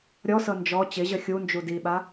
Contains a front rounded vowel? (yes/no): no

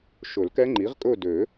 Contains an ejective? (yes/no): yes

